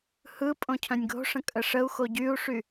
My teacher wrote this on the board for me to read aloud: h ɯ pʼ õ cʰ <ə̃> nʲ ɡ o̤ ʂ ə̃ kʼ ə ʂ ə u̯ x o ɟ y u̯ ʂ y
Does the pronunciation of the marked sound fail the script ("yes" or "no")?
yes